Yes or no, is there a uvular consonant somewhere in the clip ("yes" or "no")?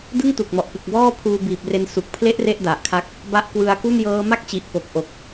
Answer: no